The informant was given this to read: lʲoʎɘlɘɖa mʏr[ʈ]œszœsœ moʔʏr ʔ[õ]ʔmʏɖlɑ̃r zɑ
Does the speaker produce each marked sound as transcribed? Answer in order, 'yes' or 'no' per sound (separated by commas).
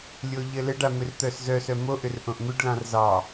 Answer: no, yes